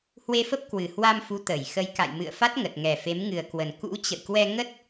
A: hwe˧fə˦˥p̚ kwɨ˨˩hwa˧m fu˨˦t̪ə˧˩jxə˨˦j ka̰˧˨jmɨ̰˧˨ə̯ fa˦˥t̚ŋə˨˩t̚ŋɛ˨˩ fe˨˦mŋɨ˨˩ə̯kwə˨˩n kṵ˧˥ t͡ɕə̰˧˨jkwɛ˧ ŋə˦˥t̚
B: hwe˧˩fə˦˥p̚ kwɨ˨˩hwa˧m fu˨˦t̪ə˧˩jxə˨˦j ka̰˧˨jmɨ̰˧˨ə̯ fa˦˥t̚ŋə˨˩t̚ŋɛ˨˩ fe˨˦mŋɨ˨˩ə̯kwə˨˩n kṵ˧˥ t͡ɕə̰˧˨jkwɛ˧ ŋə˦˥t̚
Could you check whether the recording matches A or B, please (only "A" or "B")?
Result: A